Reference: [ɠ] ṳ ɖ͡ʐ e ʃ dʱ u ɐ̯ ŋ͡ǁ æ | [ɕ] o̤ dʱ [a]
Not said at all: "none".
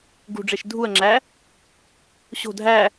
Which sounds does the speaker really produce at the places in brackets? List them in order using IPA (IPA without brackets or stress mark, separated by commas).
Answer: ɡ, ɕ, æ